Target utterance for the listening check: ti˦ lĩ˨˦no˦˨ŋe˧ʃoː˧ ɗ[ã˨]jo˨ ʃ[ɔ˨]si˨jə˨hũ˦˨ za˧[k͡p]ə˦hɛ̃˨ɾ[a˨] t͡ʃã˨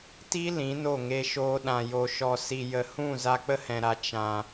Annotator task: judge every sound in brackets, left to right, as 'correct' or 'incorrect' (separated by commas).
correct, correct, correct, correct